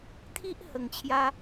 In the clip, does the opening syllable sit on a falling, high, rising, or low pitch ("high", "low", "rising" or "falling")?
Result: high